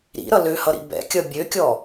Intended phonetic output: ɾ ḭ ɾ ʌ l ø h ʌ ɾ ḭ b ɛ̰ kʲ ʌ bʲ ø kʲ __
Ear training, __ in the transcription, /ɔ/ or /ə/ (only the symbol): ɔ